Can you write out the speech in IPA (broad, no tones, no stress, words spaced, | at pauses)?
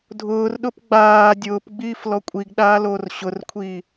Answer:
dʱʊːrɗʊp ɡ͡baː dʲʊːpɡ͡biːf lɔkʷʼiɡɗaː loːrɕʊrkʷʰiː